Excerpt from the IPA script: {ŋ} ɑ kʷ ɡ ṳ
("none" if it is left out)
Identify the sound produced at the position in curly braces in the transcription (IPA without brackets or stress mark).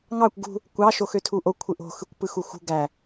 ŋ